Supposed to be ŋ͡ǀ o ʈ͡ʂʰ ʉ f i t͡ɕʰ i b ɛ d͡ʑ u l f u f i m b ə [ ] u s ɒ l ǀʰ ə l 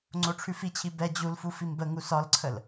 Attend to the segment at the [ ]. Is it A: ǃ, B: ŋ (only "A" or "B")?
B